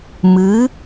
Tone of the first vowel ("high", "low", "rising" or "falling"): rising